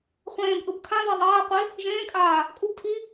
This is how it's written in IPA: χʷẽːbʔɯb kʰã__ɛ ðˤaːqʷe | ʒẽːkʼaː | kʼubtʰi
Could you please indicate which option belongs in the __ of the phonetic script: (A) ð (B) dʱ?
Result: A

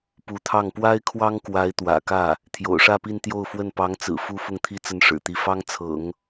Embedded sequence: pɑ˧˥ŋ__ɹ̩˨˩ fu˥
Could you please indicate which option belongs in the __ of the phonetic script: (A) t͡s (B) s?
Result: A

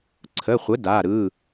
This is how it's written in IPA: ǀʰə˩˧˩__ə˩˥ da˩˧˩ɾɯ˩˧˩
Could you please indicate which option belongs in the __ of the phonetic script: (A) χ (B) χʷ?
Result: B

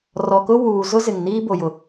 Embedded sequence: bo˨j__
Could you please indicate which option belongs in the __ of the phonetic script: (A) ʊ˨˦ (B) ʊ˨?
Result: B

